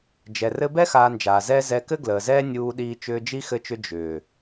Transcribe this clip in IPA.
d͡ʒ ɛ˨ r ɘ˧ b ɛ˦ x aː˧ n d͡ʒ aː˨ z ɛː˦ z ɛ˧ k ɘ˦ ɡ l əː˨ z ɛː˦ nʲ uː˧ ɗ iː˧ t͡ʃ ʏː˧ d͡ʒ i˦ x ɘ˧ t͡ʃ ʏ˧ d͡ʒ ʏː˨

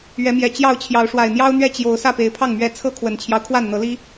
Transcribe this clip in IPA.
ɥ ɛ˨˦ m j ɛ˨˩ t͡ɕ j ɑ˥˨ ʊ̯ t͡ɕʰ j ɑ˨˦ ʊ̯ ʂ w a˨˩ ɪ̯ n̪ j ɑ˦ ʊ̯ n̪ ɥ ɛ˥˨ t͡ɕ j o˨˦ ʊ̯ s ä˥˨ p e˨˦ ɪ̯ pʰ ɑ˥˨ ŋ m ɥ ɛ˥˨ t͡sʰ ɤ˦ kʰ w ə˨˩ n t͡ɕʰ j ɑ˦ ʊ̯ kʰ w a˥˨ n n̪ ɤ˨˦ l i˦

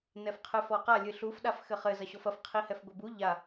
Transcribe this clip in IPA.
n ɛ f qʰ ɨ f ɔ q a lʲ ɨ ɬ u f ɗ a f x ɘ χ ɘ z ɐ ɕ ɔ f ɐ f qʰ i h ɛ f ɡʷ ɘ b u ʎ a

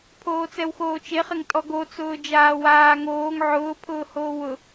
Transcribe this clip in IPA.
pʰ oː t͡s ɛ w x oː t͡ʃ e χ ɪ ŋ tʼ ɔ ɡ o t͡s ʊː d͡ʒ aː w aː ŋ oː ŋ ʕ ʊː pʰ ʊː h oː w ʊ

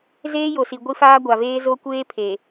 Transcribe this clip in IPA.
z eː˦ j o˨ s i˨ ɡʷ i˦ f aː˦ ɡʷ a˨ v eː˦ z o˦ kʷ eː˦ pʰ e˨

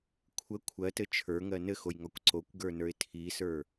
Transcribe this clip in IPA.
kʷʰ ə kʷʰ ɜ t ɘ t͡ʃʰ ə˞ ŋ ɜ n ɘ x o j ŋ ɒ kʷ ǀ o kʷ ɡ ə˞ n ə˞ ɪ̯ tʰ i s ə˞

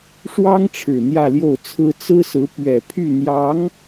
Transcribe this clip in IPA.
ʂ w ɑ˥ ŋ ʈ͡ʂʰ ɻ̩˨˩ n̪ j ä˥˧ l j o˥˩ ʊ̯ t͡sʰ ɹ̩˥ t͡s ɹ̩˥ s ɹ̩˧˥ p ɥ ɛ˨˩ pʰ y˥˩ n̪ j ɑ˧˥ ŋ

